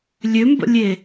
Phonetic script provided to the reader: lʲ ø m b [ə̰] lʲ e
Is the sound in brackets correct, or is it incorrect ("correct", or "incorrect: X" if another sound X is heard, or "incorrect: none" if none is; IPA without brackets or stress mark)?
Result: correct